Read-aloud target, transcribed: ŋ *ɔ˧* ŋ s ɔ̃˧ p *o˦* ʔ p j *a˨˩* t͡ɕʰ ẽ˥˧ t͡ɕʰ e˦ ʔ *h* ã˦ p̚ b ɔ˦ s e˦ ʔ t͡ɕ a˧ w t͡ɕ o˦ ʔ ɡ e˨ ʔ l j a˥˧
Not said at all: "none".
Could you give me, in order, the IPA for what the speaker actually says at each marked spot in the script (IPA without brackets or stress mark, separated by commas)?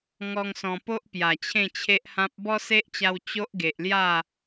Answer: ɔ˦, o˦, a˨˩, h